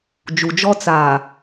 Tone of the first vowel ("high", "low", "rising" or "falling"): low